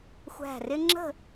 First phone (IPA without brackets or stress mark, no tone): xʷ